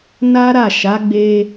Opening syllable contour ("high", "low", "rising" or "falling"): high